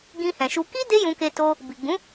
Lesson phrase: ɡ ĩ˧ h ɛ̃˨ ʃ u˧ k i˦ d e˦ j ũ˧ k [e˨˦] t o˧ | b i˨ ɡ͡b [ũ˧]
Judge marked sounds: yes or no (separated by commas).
no, no